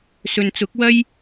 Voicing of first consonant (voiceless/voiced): voiceless